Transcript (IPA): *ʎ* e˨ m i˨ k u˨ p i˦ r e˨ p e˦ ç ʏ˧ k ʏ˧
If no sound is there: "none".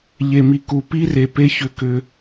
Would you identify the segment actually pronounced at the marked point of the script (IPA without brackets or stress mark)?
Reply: ʎ